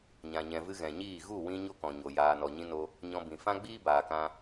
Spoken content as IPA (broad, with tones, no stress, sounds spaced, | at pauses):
ɲ ã˨ ɲ ɛ̃˨ v ɨ˧ ɣ ɛ̃˨ ɲ iː˦˨ ɣ u˦˨ w ĩ˧ ɲ o˦ k ɔ̃˨ ɲ o˨ j aː˨ n ɔ˨ ɲ ĩ˧ n o˧ | ɲ ɔ̃˧ b ĩ˨ f ã˦ ɡ͡b iː˦ b aː˨ k ã˧